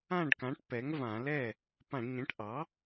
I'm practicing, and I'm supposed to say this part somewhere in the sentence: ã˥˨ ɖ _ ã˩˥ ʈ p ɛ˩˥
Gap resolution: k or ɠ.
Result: k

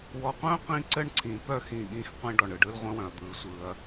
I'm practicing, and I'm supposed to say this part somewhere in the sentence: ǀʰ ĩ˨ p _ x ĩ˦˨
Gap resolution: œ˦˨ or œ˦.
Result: œ˦˨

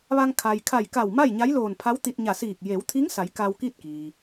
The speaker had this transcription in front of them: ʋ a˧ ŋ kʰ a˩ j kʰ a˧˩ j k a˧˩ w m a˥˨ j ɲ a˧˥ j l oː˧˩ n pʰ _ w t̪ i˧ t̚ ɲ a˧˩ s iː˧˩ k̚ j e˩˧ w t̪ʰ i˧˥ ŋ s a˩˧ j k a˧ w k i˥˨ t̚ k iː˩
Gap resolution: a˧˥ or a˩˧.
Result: a˧˥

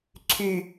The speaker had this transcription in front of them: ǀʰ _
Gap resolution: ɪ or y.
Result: y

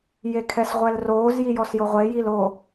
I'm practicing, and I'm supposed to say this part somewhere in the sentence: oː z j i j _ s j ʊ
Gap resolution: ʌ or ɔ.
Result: ɔ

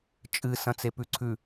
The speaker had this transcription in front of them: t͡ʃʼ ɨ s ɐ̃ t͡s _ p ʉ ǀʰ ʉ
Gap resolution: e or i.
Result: e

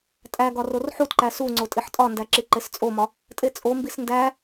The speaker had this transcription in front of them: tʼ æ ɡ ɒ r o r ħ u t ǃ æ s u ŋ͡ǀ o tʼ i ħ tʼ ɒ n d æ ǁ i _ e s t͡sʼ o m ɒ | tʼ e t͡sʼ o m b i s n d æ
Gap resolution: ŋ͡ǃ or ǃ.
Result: ǃ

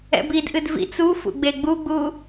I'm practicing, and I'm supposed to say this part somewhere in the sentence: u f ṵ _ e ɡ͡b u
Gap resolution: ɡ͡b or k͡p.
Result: ɡ͡b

